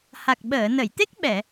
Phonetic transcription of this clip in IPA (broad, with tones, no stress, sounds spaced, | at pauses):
h a˨˩ k̚ ɓ əː˨˩˨ n ə˨˩˨ j t̪ e˦˥ k̚ ɓ ɛ˨˩˨